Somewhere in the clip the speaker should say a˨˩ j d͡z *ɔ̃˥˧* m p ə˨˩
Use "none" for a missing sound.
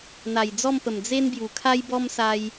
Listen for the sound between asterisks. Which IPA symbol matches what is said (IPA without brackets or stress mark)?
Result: ɔ˥˧